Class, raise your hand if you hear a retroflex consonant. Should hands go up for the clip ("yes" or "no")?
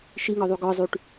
yes